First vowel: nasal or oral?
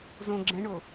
nasal